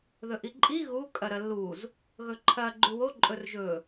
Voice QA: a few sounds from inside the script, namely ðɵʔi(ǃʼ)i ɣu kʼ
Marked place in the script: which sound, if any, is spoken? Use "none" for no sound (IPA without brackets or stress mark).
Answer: ǃʼ